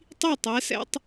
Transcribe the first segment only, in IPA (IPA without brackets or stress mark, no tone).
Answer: tˤ